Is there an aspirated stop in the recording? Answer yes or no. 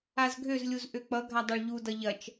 no